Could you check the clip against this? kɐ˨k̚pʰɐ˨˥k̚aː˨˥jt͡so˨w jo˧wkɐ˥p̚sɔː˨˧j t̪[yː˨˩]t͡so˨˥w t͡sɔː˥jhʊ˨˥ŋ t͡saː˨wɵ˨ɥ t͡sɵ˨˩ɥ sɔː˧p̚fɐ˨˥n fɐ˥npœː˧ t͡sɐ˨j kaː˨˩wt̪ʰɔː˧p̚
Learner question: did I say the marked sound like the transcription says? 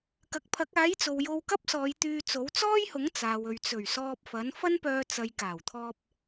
no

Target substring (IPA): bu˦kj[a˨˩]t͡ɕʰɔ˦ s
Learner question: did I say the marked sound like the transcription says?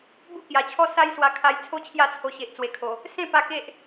yes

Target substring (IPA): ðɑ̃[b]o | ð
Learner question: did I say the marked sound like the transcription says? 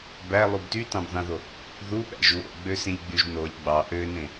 no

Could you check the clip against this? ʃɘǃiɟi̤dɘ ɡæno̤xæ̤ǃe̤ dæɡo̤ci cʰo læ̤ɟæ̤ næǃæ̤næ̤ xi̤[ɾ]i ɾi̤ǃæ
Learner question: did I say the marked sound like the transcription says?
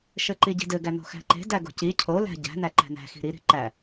yes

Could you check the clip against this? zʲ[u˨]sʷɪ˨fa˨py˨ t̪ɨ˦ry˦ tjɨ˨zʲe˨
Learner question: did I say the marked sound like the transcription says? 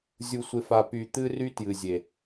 yes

